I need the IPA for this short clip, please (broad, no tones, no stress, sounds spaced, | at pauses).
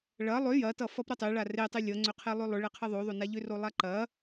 ɭ ɐ lˠ ʏ j ɐ t ʌ f ʌ p ɾ ʌ tˤ e ɭ a r e tˤ e lʲ ʌ ŋ͡ǀ ʏ qʰ e lˠ ʏ lˠ ʏ ɭ e qʰ ʌ ðˤ o ðˤ o n a ʎ ʏ r o lˠ a ǃ ɐ